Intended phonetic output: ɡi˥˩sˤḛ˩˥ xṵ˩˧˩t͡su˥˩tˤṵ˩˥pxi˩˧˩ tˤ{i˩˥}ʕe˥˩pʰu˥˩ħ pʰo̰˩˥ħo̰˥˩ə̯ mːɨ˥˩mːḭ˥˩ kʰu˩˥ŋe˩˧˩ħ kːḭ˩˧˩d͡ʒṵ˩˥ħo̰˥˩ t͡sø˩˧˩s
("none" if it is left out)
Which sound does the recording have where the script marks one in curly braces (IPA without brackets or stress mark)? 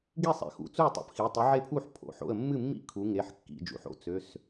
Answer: i˩˥